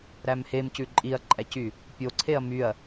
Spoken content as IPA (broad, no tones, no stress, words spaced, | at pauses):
ɾæmhemcʉ ǃʼiɐ̯ǃʼæcy | pʲoǀʰeɐ̯ myɐ̯